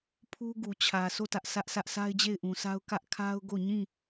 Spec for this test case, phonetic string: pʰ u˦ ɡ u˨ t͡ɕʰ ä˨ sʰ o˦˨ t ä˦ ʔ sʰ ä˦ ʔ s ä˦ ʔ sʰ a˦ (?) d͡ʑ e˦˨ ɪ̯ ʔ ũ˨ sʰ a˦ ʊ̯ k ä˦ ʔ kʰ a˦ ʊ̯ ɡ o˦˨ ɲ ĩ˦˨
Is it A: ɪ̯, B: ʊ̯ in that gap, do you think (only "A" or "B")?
A